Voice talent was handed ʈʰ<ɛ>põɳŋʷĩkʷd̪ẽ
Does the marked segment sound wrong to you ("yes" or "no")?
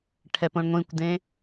no